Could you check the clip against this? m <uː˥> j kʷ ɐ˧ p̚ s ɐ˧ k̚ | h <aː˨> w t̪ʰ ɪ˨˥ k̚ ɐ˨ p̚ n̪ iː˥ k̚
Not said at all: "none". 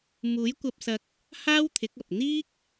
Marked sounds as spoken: uː˨˥, aː˥

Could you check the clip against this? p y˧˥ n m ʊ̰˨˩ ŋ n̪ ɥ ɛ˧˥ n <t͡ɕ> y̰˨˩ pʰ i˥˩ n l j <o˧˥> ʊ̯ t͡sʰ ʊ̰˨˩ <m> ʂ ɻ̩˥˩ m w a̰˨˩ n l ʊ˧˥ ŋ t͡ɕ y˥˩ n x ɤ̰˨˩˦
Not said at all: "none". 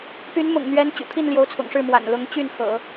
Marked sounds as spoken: t͡ɕ, o˧˥, ŋ

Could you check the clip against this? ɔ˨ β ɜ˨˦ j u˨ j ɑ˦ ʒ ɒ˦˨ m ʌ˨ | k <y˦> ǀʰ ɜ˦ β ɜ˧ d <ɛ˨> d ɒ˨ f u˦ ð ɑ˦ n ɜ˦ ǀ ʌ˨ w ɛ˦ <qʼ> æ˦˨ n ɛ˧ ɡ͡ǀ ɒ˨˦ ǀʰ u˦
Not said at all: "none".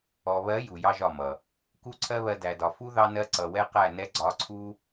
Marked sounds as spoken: u˦, æ˨, q

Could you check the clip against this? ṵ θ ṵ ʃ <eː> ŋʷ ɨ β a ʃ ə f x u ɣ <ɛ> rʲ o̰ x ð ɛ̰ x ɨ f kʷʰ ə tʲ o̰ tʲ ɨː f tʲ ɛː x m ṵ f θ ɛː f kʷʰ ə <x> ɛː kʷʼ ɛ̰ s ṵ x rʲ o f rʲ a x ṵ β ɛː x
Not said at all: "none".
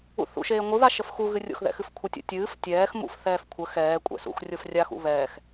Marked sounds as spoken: eː, ɨ, x

